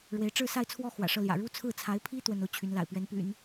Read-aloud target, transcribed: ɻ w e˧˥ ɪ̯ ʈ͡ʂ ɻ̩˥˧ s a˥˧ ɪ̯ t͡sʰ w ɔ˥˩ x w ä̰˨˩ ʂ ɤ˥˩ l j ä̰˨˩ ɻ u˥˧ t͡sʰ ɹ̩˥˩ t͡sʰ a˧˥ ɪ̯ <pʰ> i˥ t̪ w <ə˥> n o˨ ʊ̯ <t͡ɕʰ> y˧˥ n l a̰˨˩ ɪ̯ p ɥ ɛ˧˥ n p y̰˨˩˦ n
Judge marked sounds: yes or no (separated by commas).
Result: yes, yes, yes